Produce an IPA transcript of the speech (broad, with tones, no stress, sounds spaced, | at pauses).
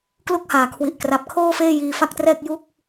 k l u˥˩ k̚ h aː˩˦ kʰ w i˨˩ ʔ k r a˨˩ p̚ kʰ oː˥˩ f eː˥˩ j iː˧ f a˥˩ k̚ t r ɛː˥˩ k̚ j u˥˩ k̚